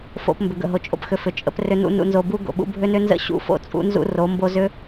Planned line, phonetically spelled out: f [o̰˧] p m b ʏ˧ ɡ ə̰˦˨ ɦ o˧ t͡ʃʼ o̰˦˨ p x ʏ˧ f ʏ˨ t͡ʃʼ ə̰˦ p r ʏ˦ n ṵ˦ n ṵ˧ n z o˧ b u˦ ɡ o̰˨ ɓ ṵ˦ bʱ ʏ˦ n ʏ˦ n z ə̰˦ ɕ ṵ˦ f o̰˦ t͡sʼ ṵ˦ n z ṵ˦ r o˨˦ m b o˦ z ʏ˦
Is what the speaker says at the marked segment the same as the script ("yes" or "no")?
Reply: no